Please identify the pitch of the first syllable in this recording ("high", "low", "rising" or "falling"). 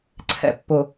low